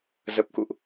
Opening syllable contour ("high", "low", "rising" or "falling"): low